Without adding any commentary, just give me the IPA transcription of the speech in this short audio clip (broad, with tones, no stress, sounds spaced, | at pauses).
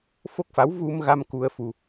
f o˦˥ k̚ f a˧˥ w v u˧ m ɣ a˧ m k u˧ ə̯ f u˧